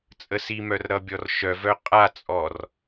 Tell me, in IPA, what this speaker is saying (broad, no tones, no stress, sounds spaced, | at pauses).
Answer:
t͡sʼ ə s i m œ r ɾ ʌ bʲ ɔ r ʃ œ v œ qʼ a t͡sʼ ɔ r